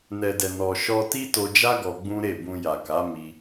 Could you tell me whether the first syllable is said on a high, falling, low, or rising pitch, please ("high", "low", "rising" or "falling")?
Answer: low